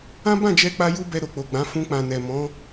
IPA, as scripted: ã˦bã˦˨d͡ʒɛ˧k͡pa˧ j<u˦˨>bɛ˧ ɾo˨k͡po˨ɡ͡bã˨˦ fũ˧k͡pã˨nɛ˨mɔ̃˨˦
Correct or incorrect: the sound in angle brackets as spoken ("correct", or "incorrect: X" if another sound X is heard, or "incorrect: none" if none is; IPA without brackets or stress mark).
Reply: incorrect: u˦